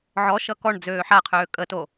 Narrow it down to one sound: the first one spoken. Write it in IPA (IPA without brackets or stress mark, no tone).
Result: ʕ